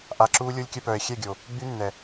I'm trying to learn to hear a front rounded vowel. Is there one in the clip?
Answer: yes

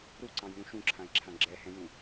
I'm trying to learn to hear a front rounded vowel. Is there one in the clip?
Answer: no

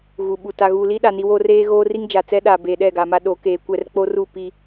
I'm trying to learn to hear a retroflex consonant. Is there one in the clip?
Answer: no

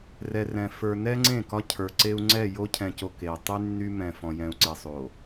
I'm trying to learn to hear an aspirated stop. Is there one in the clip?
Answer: yes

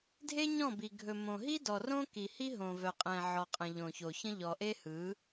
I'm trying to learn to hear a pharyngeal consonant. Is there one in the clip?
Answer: yes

